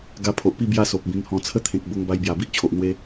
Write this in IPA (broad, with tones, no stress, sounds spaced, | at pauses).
ɡ a˧ pʰ o˨ ʔ p i˥˧ b j a˦ s o˨ p̚ b ĩ˧ ŋ h ɔ̃˧ t͡sʰ ə˥˧ t̪ʰ ẽ˨ k̚ b o˧ ŋ b a˧ j b j a˨˩ b i˦ ʔ t͡ɕʰ o˨ ʔ n̪ w e˧